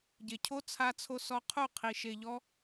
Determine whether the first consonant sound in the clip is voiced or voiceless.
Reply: voiced